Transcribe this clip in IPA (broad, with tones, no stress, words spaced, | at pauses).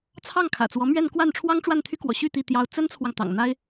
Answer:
t͡sʰɑ˥˩ŋkʰä̰˨˩t͡swɔ˧˥mɥɛ˥˧n kwa˥˩nʈ͡ʂʰwɑ˥ŋ ʈ͡ʂwa˥˩nt̪ʰy˥kwɔ̰˨˩ɕy˥˧ t̪i˥˩ t̪jɑ˥ʊ̯ t͡sə˥nt͡sʰwɑ˨ŋ t̪ɑ̰˨˩ŋn̪a˥ɪ̯